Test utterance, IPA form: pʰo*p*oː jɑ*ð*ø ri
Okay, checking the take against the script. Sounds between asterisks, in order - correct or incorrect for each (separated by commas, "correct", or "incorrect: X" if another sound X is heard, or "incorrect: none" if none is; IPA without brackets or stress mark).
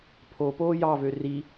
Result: correct, incorrect: v